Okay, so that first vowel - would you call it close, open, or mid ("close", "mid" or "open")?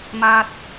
open